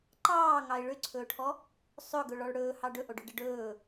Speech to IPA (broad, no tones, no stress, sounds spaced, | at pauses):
ǃ ɑː ŋ ɑ ɪ̯ ɭ ʏ ǀʰ ɵː ʈʰ ɔ | sˤ ɵ ɡ ɵ ɭ ɔ ɭ ɽ ɵː h ɑ ɖ ɵ ʔ o ɖ ɵ ɖ ə ɖ ɵː